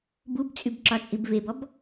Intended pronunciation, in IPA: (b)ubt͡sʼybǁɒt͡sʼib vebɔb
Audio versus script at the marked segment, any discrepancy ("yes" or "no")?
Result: no